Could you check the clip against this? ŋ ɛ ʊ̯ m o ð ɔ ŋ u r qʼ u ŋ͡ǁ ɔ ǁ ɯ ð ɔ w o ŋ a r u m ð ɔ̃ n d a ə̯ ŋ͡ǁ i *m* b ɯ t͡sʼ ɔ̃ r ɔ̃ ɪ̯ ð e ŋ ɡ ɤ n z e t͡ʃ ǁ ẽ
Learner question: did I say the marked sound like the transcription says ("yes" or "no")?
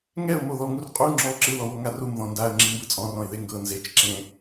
yes